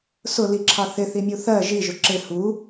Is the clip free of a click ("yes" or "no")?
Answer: no